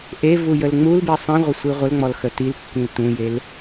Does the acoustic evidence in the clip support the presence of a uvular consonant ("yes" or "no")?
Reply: yes